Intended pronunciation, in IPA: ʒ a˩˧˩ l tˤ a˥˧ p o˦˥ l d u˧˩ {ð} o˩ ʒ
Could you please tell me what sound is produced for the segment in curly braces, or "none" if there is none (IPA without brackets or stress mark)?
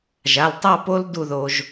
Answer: ð